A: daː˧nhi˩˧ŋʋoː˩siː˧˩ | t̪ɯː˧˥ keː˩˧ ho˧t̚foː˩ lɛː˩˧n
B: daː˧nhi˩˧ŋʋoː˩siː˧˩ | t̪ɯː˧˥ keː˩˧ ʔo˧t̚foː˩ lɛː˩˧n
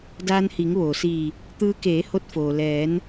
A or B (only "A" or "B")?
A